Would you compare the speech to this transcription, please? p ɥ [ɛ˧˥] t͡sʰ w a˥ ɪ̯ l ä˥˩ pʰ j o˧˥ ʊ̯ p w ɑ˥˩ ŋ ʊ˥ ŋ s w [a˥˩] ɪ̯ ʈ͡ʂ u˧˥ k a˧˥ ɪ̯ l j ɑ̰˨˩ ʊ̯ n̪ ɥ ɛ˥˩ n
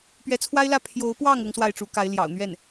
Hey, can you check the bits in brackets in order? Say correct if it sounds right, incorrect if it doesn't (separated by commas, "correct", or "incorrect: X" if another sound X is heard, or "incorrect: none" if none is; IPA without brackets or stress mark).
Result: correct, correct